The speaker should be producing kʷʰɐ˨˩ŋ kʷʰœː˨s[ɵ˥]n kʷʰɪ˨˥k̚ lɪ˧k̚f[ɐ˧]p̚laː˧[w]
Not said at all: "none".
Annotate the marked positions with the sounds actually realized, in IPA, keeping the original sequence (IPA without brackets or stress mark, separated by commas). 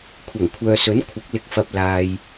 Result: ɵ˨˥, ɐ˧, j